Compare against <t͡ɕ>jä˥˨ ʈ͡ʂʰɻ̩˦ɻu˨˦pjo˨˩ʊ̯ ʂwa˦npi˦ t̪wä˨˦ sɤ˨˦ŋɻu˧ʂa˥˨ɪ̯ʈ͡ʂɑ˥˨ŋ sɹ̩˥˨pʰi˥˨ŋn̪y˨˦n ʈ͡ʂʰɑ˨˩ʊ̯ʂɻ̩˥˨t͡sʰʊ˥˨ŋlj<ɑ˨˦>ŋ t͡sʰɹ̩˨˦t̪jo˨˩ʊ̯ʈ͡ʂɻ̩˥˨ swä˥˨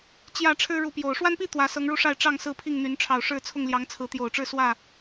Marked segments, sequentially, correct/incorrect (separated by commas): correct, correct